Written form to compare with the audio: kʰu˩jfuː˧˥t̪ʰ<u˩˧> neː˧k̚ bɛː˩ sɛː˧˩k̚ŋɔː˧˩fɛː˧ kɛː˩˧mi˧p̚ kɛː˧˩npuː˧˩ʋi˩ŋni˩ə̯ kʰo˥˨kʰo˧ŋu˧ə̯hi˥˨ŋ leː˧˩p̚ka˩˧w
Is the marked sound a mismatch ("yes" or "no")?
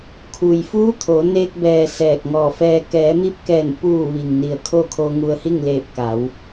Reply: yes